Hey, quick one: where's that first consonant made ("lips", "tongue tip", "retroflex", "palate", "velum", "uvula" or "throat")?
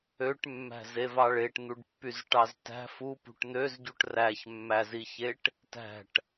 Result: retroflex